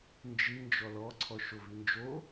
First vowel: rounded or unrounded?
unrounded